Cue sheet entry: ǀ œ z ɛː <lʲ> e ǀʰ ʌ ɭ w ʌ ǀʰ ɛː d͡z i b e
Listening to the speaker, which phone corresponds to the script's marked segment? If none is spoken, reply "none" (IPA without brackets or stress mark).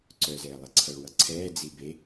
lˠ